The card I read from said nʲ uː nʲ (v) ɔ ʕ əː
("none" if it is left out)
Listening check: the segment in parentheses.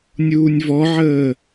v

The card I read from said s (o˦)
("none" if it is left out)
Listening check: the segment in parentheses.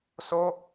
o˦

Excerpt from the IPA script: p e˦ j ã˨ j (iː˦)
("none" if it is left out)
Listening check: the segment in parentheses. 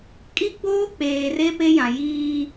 iː˦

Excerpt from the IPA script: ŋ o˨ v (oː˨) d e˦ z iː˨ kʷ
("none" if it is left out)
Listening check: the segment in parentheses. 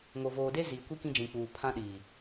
oː˨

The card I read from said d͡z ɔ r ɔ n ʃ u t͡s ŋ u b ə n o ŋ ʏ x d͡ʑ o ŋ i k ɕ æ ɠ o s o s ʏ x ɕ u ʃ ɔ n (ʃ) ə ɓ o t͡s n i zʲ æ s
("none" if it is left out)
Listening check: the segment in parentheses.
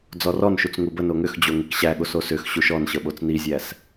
ɕ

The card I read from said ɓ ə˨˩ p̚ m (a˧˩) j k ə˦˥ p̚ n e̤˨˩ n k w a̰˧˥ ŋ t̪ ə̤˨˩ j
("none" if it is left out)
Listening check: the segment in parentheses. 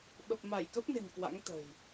a˧˩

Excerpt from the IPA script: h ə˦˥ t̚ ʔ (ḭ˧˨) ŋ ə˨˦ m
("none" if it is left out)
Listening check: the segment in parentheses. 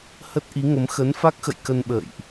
i˨˦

